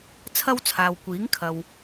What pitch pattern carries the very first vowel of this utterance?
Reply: high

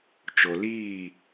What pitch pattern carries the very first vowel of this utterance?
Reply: low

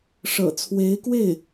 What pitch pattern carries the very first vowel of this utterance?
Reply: low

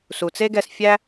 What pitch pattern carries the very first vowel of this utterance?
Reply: low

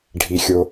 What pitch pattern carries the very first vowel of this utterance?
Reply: low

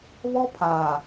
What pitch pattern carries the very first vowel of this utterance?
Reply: high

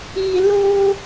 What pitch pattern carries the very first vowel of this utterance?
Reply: low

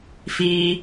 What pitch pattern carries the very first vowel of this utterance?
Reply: high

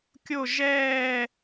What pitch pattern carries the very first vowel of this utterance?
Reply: falling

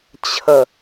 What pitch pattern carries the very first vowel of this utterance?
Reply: low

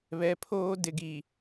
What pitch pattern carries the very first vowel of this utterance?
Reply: low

